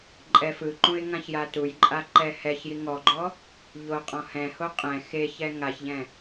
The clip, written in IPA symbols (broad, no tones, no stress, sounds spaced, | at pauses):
ǃʼ ɛ f ɯ ǃ ũ ɪ̯ ŋ ã ç j a t u j ǃʼ a ǃ ɛ h ɛ ç j i ŋ ɔ ɡ͡ǃ ɔ | ʎ o qʼ ɔ̃ h ɛ̃ h o qʼ ɛ̃ x e ç ɛ ŋ a ç ʎ ɛ̃